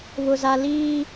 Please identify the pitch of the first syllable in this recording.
high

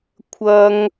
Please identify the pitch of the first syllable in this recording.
high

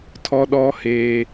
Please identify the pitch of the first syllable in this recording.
high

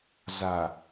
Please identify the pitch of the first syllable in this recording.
low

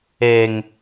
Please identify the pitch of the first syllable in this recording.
low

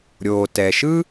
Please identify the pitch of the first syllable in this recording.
low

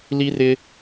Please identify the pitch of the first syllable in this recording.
high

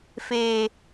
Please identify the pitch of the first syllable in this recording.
low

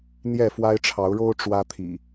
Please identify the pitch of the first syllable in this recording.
falling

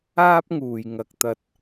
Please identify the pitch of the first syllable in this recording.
high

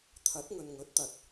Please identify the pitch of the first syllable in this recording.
rising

